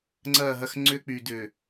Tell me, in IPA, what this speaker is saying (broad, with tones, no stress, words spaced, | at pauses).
ŋ͡ǀɐː˦˨ɦɐ˦˨x ŋ͡ǀʏː˦k͡pyː˨d ʏː˨